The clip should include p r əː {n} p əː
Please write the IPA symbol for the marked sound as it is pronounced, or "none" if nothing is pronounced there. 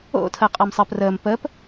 m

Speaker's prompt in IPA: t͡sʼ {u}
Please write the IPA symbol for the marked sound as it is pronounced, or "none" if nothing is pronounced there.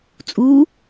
u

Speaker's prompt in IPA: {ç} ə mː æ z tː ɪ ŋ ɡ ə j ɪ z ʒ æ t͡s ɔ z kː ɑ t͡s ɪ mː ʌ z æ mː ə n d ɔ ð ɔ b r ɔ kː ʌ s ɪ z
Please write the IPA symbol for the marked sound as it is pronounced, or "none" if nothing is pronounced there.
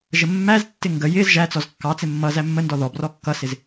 ʒ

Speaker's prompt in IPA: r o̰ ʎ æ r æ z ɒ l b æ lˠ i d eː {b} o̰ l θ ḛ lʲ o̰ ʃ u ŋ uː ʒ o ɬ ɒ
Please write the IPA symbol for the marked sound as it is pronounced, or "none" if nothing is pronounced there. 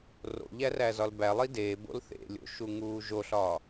b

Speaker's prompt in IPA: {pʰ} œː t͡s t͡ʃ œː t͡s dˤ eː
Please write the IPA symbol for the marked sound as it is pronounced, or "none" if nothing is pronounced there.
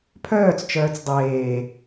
pʰ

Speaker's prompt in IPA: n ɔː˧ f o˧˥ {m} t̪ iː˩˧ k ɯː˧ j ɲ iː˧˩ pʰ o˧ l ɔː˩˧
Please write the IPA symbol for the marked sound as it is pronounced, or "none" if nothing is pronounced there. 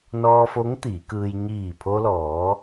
ŋ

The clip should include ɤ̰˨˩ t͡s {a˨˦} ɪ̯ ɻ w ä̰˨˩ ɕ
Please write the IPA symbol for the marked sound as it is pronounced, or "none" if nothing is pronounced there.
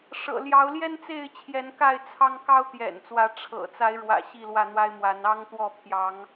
a˨˦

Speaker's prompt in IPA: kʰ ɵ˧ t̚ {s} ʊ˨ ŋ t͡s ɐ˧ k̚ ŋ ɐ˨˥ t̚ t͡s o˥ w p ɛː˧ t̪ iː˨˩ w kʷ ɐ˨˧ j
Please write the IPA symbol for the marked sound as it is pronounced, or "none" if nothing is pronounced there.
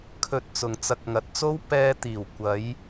t͡s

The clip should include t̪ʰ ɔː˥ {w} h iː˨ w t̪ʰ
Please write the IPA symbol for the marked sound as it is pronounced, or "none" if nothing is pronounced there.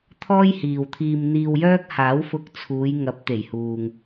j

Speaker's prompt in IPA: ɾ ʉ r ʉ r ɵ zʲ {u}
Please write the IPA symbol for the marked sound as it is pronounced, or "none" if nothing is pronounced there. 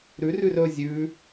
ʉ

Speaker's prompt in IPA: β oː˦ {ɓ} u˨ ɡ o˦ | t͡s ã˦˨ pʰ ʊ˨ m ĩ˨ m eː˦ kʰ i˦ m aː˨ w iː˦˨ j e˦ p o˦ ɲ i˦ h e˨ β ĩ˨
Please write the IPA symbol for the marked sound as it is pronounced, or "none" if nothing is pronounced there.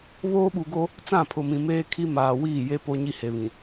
ɓ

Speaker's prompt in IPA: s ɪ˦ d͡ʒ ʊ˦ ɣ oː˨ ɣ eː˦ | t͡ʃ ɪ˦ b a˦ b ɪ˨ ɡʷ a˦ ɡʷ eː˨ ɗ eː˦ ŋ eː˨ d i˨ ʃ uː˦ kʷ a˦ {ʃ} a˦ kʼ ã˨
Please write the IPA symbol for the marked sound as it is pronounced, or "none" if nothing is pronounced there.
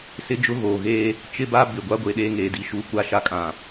ʃ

